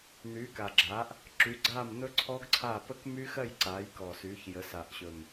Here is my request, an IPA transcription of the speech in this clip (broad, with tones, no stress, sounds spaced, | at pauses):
n̪ yː˩˥ k a˨˩ ɡ͡ǁ aː˩˥ ʔ | ǁ y˩˥ ɡ͡ǀ aː˥˩ m n̪ ɵ˦˥ ǀʰ ɔ˦˥ ɡ ǀʰ a˥˩ p ə˦˥ k m y˦˥ x ɜ˥˩ j ǀ aː˩˥ j k ɔ˨˩ s yː˩˥ ç j ə˩˥ s a˨˩ ʔ ɕ ɵ˨˩ m